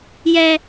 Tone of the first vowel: high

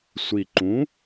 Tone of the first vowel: low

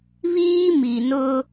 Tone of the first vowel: high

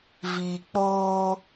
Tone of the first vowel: low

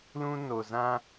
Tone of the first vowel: high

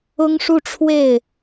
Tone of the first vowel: high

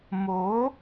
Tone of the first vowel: rising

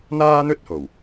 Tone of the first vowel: high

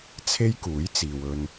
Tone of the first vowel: high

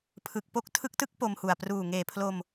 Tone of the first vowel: low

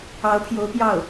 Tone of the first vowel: rising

